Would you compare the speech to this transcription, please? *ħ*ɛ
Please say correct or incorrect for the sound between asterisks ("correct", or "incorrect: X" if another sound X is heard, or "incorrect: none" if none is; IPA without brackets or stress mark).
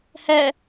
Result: incorrect: h